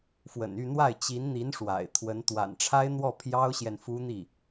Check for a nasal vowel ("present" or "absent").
absent